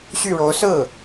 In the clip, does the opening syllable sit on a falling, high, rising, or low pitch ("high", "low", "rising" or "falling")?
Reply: falling